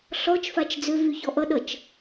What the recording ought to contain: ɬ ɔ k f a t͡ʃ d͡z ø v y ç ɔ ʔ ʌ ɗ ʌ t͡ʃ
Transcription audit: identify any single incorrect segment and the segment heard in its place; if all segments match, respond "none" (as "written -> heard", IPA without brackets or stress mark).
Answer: k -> t͡ʃ